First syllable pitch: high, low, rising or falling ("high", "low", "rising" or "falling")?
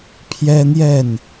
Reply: high